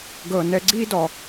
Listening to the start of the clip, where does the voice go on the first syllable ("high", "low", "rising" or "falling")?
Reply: low